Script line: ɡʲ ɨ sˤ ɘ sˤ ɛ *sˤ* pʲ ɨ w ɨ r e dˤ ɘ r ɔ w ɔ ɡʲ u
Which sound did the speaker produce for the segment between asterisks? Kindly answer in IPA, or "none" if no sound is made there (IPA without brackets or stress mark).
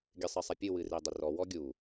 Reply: none